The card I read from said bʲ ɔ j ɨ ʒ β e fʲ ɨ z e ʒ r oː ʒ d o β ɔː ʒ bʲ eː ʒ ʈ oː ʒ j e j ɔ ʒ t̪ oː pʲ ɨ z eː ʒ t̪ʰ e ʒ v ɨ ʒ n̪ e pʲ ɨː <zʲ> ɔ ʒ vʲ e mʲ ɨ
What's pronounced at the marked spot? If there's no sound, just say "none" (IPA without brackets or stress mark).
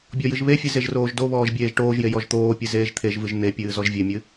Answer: z